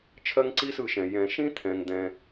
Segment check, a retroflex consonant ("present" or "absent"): absent